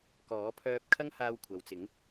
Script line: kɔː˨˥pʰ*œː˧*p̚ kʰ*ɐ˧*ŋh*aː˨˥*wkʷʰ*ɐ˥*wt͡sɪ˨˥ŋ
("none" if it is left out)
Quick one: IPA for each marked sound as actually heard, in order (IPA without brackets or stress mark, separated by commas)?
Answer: œː˧, ɐ˥, aː˧, ɐ˨